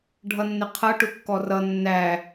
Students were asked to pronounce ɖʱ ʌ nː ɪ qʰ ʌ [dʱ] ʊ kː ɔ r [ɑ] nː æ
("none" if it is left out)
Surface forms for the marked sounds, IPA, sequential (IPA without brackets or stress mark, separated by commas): ʈ, ʌ